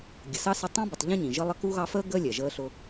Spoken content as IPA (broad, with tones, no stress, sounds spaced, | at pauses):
ɡʲ ə˨ s ɑ˥ s ɪ˦ tˤ ĩ˥ b u˨ tˤ ʎ ə̃˥ ɲ ĩ˩ ʒ ə˦ lˠ ə˦ k u˥ ɣ ɑ˦ f əː˥ ɡ əː˥ lʲ ɛ˩ ʒ əː˦ ɬ ʊ˦